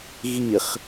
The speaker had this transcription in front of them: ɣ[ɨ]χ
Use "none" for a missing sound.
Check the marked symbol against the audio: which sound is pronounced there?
i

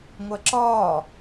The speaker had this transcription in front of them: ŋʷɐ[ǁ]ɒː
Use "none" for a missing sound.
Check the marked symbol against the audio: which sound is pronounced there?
ǁ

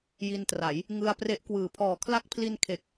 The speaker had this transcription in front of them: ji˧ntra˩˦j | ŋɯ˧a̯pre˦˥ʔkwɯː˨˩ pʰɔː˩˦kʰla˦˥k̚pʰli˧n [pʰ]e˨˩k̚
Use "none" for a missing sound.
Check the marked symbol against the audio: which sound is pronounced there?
kʰ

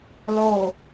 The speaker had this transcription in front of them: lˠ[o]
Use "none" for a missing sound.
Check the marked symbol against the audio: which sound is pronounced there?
o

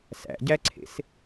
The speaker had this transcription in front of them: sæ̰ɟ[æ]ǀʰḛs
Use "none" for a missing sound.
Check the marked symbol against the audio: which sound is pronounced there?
æ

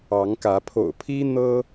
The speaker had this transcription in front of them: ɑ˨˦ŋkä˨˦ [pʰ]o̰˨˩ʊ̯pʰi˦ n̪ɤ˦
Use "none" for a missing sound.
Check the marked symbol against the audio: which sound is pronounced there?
pʰ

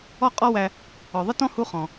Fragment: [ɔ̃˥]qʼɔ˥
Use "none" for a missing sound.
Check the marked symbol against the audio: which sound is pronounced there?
ɔ˥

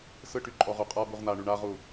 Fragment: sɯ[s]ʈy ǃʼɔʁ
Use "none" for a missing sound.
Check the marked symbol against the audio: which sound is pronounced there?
none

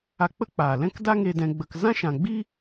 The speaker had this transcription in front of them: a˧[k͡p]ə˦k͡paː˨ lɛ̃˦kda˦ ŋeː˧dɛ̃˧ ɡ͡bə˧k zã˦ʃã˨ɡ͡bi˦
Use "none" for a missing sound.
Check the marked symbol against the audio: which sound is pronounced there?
k͡p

